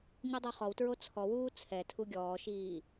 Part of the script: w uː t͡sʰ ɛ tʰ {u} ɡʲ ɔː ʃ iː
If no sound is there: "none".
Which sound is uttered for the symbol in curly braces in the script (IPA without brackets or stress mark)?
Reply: u